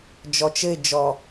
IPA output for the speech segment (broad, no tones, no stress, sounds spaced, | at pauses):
d͡ʒ ɔ t͡ʃ ɘ ɪ̯ d͡ʒ ɔ